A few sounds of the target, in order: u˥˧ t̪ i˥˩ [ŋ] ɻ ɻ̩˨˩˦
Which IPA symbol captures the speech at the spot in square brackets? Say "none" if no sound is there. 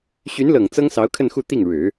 ŋ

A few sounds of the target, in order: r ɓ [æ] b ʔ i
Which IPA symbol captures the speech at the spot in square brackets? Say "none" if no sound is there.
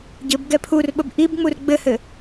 ə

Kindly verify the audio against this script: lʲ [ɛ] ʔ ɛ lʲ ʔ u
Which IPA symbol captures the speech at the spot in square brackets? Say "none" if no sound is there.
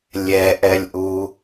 ɛ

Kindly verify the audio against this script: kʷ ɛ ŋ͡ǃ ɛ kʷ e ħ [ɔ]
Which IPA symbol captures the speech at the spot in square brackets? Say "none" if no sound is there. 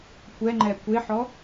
ɔ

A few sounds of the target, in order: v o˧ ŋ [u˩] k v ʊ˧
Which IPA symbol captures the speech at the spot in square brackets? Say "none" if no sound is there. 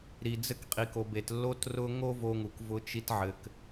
u˩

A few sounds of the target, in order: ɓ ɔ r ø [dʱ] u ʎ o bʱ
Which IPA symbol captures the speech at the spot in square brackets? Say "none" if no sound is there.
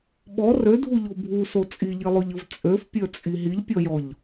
dʱ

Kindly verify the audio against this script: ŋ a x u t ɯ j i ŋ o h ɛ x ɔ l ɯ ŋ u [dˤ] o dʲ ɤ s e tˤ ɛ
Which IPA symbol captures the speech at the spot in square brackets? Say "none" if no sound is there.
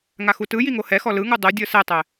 dˤ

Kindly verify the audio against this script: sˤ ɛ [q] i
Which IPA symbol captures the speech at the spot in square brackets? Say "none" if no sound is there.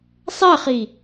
χ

